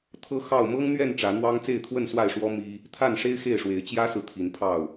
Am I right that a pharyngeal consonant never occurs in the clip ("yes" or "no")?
yes